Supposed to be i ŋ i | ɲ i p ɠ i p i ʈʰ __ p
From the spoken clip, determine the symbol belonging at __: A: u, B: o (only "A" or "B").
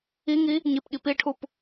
A